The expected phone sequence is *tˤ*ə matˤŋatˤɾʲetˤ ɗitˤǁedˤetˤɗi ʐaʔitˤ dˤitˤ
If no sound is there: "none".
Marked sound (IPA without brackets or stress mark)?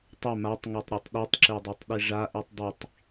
tˤ